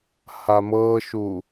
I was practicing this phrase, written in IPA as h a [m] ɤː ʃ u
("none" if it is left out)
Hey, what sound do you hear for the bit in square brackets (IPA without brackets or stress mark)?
m